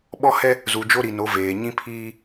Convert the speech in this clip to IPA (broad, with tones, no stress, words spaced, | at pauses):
ɓɔ˦hɛ˦ | zu˨d͡ʒo˦ɾi˨no˨˦ veː˨ ɲĩ˦pʰiː˦